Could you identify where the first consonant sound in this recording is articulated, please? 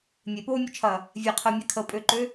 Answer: labial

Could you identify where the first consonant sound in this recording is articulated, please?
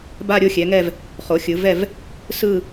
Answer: labial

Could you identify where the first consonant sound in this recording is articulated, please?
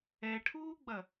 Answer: retroflex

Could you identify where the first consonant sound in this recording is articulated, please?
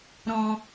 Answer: alveolar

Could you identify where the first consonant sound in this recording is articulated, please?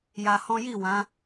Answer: palatal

